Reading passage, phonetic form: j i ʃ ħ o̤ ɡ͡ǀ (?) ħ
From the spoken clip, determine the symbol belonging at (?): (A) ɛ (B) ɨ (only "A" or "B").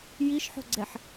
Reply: A